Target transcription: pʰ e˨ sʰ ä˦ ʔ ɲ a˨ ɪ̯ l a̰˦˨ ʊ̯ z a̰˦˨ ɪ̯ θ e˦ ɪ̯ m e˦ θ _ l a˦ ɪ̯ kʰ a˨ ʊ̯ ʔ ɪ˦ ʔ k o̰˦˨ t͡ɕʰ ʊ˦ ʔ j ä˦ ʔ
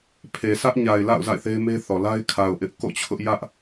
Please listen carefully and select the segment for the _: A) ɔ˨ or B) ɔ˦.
A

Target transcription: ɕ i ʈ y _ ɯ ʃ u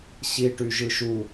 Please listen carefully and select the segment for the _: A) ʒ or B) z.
A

